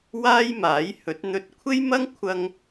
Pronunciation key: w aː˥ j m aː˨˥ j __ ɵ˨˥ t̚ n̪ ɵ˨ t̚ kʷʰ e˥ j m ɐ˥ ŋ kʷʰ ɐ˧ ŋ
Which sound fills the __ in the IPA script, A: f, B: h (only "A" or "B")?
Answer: B